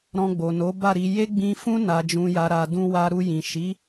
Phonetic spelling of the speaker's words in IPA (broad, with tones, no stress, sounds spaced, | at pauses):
ɾ ɔ̃˧ ɡ͡b o˨ n o˨˦ b a˦˨ ɾ i˧ j e˦ ɡ͡b ĩ˧ f ũ˧ n a˨ d͡ʒ ũ˨ j a˨ ɾ a˨ d ũ˧ w a˧ ɾ u˧ j ĩ˨ ʃ i˨˦